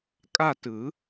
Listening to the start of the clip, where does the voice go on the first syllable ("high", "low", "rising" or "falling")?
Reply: falling